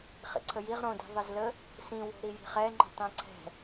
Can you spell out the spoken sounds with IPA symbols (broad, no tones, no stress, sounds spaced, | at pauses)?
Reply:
χ ḭ ǀʰ ə j i ʁ ɾ õ d i̤ ðˤ ə z l ə | s ĩ w o̤ ɾ i j i̤ χ ɛ ŋ͡ǃ o̤ tˤ ĩ ǀʰ ɛ̤